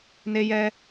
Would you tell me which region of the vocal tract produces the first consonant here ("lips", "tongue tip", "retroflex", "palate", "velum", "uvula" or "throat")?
tongue tip